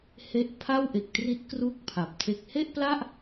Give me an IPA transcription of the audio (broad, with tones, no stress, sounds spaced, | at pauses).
h e˥˩ ʔ pʰ a˥˩ w ʔ e˨˩ k̚ t r i˦˥ t̚ k r u˥˩ k̚ pʰ a˨˩ p̚ tʰ e˦˥ k̚ h e˥˩ ʔ p l a˥˩ ʔ